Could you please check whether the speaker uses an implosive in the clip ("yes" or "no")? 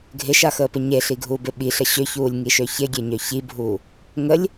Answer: yes